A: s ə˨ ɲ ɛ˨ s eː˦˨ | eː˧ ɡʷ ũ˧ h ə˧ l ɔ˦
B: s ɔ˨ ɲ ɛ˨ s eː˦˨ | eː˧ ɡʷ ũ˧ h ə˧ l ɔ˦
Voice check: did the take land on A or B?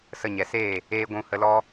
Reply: A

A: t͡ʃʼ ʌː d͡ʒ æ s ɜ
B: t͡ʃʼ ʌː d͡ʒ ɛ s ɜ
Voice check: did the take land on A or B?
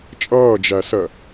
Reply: A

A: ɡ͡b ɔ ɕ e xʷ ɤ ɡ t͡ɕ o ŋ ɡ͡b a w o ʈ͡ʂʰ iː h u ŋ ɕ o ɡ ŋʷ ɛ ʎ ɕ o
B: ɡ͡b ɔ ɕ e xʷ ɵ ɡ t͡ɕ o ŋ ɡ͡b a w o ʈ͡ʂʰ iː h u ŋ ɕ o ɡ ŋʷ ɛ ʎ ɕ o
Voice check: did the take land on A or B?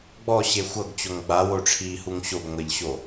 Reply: A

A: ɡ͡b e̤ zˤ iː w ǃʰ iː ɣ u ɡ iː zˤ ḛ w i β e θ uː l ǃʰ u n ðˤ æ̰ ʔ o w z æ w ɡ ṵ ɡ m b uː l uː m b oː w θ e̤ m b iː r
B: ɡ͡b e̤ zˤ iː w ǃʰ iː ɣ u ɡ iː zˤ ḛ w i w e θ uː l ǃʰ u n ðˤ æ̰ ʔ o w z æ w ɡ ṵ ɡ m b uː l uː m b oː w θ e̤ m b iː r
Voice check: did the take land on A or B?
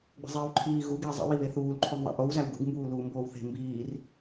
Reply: A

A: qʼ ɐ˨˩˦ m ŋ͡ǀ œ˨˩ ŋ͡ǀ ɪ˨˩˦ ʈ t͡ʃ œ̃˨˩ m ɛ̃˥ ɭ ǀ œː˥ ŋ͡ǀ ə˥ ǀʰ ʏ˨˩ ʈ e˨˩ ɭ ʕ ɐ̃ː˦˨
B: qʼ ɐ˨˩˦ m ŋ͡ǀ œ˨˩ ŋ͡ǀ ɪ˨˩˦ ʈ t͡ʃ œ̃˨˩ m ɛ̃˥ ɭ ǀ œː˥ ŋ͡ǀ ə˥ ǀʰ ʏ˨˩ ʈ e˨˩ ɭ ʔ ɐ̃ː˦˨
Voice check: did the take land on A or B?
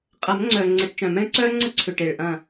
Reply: B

